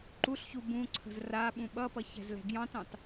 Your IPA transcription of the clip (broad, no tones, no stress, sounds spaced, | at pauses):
ǃ u ɬ ç u b ũ ǀʰ ə̤ z r a ɓ ũ ɓ ʌ p ʌ ç ɛ̤ z l ɛ̤ ɡ j ɑ̃ t ɑ̃ t